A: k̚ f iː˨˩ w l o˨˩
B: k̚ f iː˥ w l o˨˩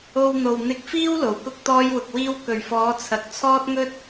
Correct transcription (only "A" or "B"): B